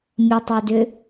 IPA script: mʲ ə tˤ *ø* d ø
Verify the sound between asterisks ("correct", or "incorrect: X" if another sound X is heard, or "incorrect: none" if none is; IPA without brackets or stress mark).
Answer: correct